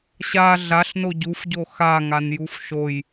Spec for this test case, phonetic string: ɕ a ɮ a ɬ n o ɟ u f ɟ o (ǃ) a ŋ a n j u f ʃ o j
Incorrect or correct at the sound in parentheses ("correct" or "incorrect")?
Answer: incorrect